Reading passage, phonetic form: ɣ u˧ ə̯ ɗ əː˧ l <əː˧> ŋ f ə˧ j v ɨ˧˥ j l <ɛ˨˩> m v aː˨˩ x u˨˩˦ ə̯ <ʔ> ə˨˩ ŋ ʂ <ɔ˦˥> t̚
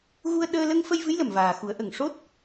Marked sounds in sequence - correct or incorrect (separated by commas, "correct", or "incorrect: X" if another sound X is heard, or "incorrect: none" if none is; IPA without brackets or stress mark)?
incorrect: ə˧, incorrect: ə˨˩, correct, incorrect: o˦˥